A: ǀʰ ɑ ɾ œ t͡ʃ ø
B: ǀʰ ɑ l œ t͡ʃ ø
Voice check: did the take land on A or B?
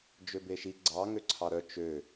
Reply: A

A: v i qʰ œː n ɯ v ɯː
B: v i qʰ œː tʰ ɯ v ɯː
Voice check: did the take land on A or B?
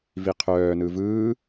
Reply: A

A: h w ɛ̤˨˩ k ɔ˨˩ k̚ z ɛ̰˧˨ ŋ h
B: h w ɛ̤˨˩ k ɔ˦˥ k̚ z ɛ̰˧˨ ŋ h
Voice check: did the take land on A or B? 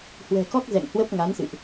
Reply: B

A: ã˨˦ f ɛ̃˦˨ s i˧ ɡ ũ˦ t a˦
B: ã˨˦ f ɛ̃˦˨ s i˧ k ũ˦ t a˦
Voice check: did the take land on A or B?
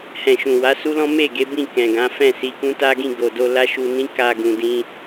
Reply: B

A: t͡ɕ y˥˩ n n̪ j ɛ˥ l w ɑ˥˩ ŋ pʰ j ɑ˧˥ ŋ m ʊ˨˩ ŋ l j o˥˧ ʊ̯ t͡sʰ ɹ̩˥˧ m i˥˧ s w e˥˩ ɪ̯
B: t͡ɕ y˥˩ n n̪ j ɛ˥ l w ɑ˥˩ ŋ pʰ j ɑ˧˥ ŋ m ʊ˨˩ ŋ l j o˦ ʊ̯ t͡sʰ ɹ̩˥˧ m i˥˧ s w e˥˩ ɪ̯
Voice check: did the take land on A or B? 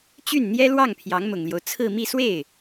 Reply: B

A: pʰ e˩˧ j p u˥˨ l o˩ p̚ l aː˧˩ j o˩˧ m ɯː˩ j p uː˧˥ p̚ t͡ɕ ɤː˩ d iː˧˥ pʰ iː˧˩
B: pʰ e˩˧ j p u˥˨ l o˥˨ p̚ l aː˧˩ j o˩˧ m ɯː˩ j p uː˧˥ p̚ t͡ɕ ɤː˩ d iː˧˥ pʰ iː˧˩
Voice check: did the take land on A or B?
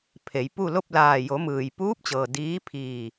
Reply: B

